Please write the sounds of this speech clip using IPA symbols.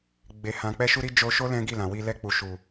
ɡ͡be˨ hã˨k͡pɛ˧ʃu˧ɾi˧ d͡ʒo˧ʃo˦ lɛ̃˦ɡi˦˨lã˨wi˧ lɛ˧k͡pu˨ʃu˨

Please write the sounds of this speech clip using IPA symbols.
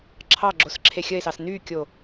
ǁʰɑɡ͡ǁos ǁʰexʲəe̯sɑs nykʲo

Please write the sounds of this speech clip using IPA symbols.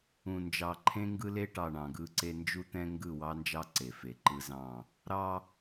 ũ˨nd͡ʒɑ˨ ǃʰẽ˦ŋɡɯ˦le˦ʈɑ˨ ɳɑ̃˨ɡɯ˦ǀe˦ nd͡ʒu˦t̪ɛ̃˦ ŋɡɯ˦˨wɑ˦nd͡ʒɑ˦ ǀe˨fe˨ǃɯ˦zɑ̃˦˨ | ɾɑ˦

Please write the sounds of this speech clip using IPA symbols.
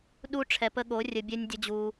ɗu˦ ʈ͡ʂʰɛ˨pə˧ɠo˨˦ rʲə˧bʲɛ˦nʲdʲə˦d͡ʑu˧

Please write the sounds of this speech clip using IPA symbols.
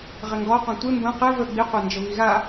ʁɘŋɡɔqɔ̃ tʷe mbə̃ qɘ və ɡ͡biqʷand͡ʒə βiɣa

